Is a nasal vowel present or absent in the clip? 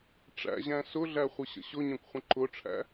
present